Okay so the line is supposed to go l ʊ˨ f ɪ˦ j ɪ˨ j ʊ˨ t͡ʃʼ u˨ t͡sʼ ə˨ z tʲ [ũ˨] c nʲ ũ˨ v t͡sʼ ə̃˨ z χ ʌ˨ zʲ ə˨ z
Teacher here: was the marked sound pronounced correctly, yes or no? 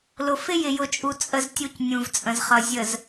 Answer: no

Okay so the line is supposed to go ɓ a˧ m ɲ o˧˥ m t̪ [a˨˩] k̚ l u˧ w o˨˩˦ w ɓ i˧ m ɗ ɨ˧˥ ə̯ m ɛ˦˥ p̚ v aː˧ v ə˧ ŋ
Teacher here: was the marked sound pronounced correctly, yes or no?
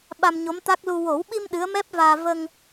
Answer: no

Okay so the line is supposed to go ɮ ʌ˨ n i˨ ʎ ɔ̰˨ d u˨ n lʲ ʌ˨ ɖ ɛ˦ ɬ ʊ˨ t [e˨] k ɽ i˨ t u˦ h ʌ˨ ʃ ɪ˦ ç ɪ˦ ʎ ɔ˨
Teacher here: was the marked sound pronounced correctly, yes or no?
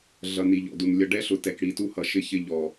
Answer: no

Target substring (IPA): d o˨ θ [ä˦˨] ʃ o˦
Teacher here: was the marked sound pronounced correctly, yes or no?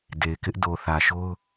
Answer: no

